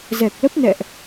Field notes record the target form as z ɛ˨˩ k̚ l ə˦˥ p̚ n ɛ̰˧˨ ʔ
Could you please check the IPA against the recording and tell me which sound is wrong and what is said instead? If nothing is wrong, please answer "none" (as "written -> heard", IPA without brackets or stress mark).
none